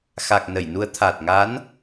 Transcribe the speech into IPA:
xa˨˩k̚nə˧˩jnu˨˦ə̯ t̪ʰa˨˩t̚ŋa˨˦n

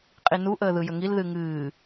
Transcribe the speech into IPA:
qʼinu ʔəːðɯjəŋil ðɨŋɨː

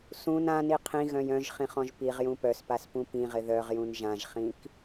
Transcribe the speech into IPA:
sũn ãni qʰĩɣœ̃j œ̃ʒχĩχɔ̃ʒ piʁjũ pœspaspũ pĩʁɪ ðœʁjũn ʒãʒχĩk

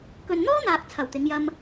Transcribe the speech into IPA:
kɵ˨nn̪ɔː˥n̪aː˨k̚ t͡sʰɐ˨˩wt̪ɪ˨˧ŋjɐ˧m

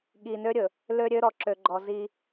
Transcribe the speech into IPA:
ɠi˨nø˦ɾʲɵ˨ | lø˦ɾʲø˦ ɾɔ˨ǁø˨ɡ͡ǃɔ˨ zi˦

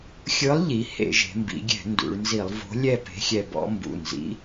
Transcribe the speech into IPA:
xʲɯ˨˥lˠʎi˩˧ hḛ˧˩˧ʒe̤˩˧mbḭ˩˧ɡʲɛ̤˧˩˧ ndṵ˩˧ɭnzi˧˩˧lˠ vo̤˨˥ lʲɛ˥˨pe̤˨˥xʲɛ˧bɔ̰˨˥ mbṵ˩˧˩nzḭ˨˥

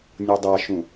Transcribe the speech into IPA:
nʲudˤaʃũ

